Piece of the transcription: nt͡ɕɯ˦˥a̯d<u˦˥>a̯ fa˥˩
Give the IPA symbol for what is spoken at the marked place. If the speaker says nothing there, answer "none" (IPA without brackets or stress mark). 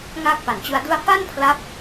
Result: u˥˩